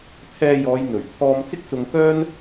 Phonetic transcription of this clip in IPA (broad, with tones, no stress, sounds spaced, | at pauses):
pʰ ɛː˧ j ɔː˨˧ j n̪ ɵ˨˩ ɥ t̪ʰ ɔː˧ m t͡s ɪ˥ k̚ t͡s ʊ˧ ŋ k œː˥ n